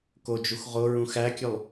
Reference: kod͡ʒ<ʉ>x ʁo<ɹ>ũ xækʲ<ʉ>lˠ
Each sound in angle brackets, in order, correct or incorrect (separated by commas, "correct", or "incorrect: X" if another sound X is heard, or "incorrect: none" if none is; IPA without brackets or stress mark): incorrect: u, correct, correct